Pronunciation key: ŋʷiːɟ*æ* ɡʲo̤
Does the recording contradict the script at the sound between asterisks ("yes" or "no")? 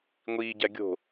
no